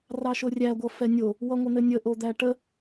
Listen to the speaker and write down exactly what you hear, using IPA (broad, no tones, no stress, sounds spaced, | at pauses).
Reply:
r ɑ ʃ o rʲ æ ɡʷ ʌ f ɛ nʲ o | w ʌ ŋʷ ə n̪ ɘ nʲ ə ʔ o d̪ æ ʈ ə